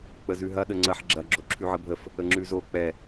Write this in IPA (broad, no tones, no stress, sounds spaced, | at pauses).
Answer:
k͡p ə z ʉ ɦ ɐ ɗ ə ŋ͡ǀ ɐ ħ ɡ͡ǁ ɐ ɡ͡ǁ o ǁʰ ʉ ʕ ə bʱ ə f | ə ŋ͡ǁ ʉ z o k͡p ɛ